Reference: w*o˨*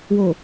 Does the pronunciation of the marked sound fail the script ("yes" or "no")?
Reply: no